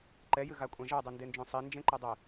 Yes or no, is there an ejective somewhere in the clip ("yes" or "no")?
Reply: yes